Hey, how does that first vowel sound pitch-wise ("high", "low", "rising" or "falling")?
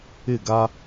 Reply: falling